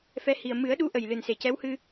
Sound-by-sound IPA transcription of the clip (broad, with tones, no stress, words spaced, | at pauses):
fɛ˧˥hi˨˩ə̯ mɨ˨˩˦ə̯ ɗu˧˥ ʔə˨˩jlɨ˨˩nse˨˩cɛ˧˥w hɨ˧